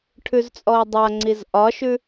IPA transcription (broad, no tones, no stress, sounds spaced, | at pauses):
ʈʰ ʉ z t͡sʼ ɔ ʊ̯ dˤ a ŋ͡ǀ i z ʔ ɒ ʃ ʉ